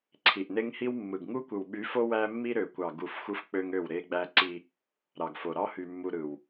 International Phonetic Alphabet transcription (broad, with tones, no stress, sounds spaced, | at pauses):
ǀʰ i˨ ʔ n e˦ ŋ h i˦ w mː ɯ˨ ɡ ŋ u˦ kʷ ɯ˨ w ɓ y˨˦ f o˦ w æ˦ mː i˦ ɾ ø˨ kʷ ɑ˨ ɡ u˦˨ f xʷ ɯ˦ f k͡p ø˦ ŋ ø˦˨ w ɾ e˦ ɡ͡b æ˦ ǀ i˦ | ɾ ɑ˨ ɡ f o˨ ɾ ɑ˦ h y˨ mː u˨ ɾ ɯ˨ w